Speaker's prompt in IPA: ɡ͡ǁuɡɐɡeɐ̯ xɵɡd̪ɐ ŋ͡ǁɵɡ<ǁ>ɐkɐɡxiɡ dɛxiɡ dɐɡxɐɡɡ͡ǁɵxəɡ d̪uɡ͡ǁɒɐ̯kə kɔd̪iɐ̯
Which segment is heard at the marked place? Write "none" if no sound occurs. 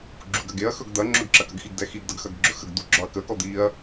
ǁ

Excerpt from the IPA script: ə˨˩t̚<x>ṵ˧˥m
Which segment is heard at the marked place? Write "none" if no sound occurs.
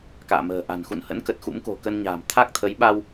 x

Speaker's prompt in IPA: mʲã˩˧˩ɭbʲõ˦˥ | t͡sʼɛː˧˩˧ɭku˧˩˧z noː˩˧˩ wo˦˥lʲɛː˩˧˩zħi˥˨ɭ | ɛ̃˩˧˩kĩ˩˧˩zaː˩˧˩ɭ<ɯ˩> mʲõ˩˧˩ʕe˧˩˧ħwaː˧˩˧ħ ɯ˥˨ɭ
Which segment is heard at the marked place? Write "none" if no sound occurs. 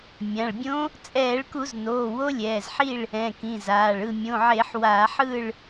ɯ˥˨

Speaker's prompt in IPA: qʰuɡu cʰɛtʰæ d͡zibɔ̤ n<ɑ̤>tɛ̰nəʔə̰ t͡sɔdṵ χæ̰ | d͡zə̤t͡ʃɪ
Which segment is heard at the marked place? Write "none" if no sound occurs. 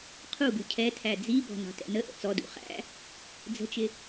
ɑ̤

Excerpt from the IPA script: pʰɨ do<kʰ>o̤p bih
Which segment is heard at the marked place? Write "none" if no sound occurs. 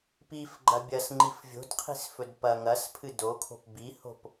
kʰ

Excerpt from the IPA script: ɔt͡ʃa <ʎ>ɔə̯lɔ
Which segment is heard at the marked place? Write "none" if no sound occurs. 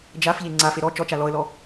l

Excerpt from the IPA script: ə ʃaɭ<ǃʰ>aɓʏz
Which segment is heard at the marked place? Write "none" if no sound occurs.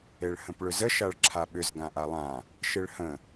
ǁʰ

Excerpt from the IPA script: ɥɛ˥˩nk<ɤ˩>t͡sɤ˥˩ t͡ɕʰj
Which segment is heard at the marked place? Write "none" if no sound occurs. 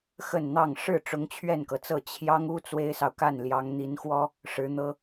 ɤ˩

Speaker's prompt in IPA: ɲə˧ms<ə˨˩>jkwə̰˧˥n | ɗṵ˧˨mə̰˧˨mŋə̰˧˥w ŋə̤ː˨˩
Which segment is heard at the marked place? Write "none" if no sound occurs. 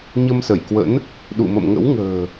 ə˧˩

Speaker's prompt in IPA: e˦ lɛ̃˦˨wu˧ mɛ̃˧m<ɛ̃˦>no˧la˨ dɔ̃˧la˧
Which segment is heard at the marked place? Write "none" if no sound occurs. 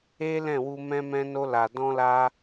ɛ̃˧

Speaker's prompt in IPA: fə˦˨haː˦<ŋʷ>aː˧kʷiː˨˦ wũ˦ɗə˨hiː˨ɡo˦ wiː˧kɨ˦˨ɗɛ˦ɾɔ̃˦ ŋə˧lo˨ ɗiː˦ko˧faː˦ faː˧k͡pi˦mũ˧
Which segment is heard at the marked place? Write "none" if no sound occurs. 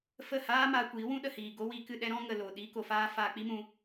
m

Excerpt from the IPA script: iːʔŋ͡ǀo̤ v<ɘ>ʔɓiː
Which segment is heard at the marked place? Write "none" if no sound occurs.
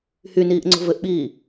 ɘ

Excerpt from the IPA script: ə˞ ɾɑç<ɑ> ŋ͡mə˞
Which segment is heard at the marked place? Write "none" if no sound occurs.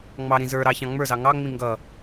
ɑ̃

